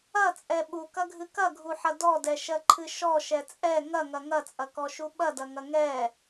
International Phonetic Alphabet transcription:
ɐ t͡sʼ ɛ ɓ u k ɐ ɡʱ ɨ k ɐ ɡʱ u ħ ɐ d ɔ d ɛ ʃ ɜ ǃʰ ɨ ʃ ɔ ʃ ɛ t͡sʼ ɛ ŋ ɐ ŋ ɐ ŋ ɐ t͡sʼ ɐ k ɔ ʃ u ɓ ɐ d ɐ ŋ ɐ ŋ ɛ

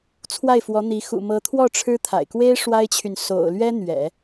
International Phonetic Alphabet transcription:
t͡sʰ w a˥˩ ɪ̯ f w ɔ˧˥ n̪ i˧˥ x ṵ˨˩ m ɤ˧˥ t̪ʰ w ɔ˥˩ ʈ͡ʂʰ ɻ̩˥ t̪ʰ a̰˨˩ ɪ̯ k w e˥ ɪ̯ ʂ w a˥ ɪ̯ t͡ɕʰ y˨ n s o̰˨˩ ʊ̯ l ɥ ɛ˥ n̪ ɥ ɛ̰˨˩˦

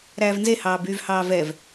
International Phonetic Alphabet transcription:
ɾ æː v n z e h ɑː b yː v h ɑː v ɛ v

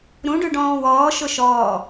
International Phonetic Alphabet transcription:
ɾ ũ ɖ ʉ ɖ ɔ̃ː w ɔː ʃ ʊ ʃ ɔː

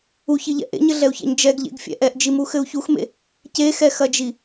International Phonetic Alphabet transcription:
u ç i ʎ ɛ̰ ʔ ḛ ɲ ɘ ɮ ɛ u̯ ç ɛ̰ ɲ d͡ʒ ɛ ɡ ʎ ḛ ɡ fʲ ɛ̰ ʔ ɛ ʔ d͡ʒ i m u x ɘ u̯ ç u x m ḛ | c e x ɛ x ɐ d͡ʒ i

